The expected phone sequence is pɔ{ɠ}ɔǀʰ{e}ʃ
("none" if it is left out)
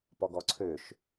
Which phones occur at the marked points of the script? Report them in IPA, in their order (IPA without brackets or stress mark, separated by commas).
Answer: ɡ, ø